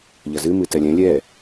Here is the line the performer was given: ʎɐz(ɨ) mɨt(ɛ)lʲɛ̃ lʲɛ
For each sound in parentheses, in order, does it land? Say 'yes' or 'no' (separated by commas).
yes, yes